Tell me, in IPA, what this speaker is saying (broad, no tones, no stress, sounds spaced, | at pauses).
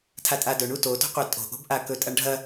tʰ a tʼ a d ɵ ɳ u t o t o̤ qʷ a tʼ o̤ ʔ o̤ b ʔ a k ɵ tʼ ɐ ɳ ɖʱ ɐ